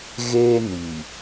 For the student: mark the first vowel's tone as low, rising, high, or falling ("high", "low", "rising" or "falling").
high